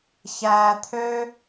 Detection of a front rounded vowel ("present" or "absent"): present